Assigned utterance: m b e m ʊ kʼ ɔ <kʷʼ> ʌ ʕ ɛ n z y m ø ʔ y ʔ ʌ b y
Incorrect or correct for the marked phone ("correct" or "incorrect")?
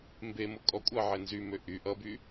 correct